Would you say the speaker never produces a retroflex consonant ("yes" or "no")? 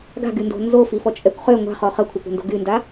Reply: yes